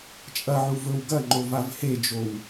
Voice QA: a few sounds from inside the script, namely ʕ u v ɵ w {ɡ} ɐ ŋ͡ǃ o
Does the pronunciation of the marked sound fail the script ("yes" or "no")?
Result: no